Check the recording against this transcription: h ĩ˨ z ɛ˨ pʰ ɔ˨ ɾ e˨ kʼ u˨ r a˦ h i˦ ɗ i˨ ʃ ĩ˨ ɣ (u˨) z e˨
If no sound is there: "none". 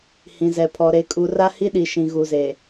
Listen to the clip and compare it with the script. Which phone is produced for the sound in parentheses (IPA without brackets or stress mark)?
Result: u˨